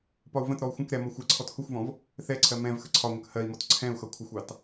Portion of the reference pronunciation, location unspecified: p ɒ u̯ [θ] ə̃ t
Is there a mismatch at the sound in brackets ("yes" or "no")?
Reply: yes